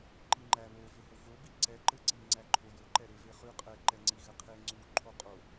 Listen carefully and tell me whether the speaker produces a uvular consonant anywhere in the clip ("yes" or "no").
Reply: yes